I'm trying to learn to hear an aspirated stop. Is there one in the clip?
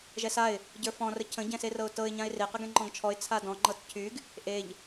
yes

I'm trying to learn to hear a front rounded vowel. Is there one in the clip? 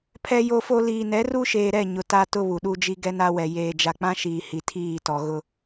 no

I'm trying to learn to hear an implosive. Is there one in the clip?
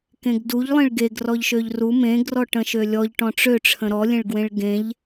no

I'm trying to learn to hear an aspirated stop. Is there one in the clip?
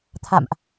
yes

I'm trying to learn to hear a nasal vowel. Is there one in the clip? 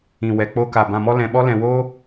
yes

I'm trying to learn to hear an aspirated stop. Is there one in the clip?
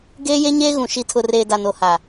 yes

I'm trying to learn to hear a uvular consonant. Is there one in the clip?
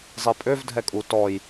no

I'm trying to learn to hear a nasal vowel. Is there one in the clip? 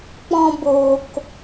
yes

